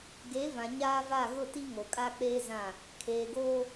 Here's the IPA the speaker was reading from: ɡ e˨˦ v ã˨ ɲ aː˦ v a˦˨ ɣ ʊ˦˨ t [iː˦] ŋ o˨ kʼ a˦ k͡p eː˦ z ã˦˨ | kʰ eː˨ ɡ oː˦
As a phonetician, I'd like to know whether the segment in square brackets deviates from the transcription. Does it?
yes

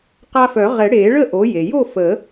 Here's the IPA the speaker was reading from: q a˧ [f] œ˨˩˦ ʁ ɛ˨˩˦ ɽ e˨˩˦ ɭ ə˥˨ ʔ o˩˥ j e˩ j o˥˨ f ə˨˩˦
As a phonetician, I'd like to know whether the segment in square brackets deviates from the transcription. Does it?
no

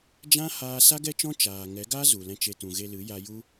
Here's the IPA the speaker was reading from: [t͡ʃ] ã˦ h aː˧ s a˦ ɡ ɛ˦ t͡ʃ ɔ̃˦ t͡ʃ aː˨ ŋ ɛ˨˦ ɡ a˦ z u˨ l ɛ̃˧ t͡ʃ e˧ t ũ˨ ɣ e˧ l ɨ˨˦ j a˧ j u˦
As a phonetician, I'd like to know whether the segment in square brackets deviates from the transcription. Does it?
yes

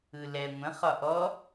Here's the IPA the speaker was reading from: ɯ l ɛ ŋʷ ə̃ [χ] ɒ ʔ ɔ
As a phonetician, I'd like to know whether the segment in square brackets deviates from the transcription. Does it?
no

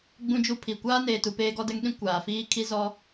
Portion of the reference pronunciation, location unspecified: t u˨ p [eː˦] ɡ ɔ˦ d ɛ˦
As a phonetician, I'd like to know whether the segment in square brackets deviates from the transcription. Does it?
no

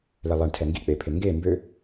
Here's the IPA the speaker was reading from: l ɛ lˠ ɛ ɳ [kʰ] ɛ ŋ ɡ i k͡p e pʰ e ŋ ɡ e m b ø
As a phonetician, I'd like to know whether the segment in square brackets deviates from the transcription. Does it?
yes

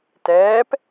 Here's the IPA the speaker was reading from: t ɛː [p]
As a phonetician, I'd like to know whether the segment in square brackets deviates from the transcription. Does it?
no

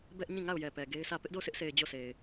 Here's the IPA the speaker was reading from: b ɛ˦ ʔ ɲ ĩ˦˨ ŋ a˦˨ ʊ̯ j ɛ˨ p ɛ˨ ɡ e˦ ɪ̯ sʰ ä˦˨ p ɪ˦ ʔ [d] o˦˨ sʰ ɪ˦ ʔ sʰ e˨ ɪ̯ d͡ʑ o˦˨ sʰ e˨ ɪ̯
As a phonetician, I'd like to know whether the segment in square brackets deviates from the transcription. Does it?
no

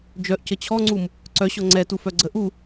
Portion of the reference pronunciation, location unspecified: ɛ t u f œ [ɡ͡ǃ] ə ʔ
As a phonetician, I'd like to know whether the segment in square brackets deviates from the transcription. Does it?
yes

